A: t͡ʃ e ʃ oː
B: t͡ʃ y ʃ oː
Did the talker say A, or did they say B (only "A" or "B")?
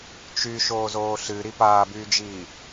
B